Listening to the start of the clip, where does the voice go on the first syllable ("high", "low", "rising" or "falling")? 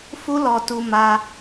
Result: high